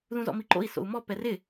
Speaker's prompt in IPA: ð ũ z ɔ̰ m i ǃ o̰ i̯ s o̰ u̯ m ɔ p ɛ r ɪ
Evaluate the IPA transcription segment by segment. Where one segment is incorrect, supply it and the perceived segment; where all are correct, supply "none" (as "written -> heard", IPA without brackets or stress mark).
none